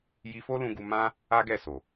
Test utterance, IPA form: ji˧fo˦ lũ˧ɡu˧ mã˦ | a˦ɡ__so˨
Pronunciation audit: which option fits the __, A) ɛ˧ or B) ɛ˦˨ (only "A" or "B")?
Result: B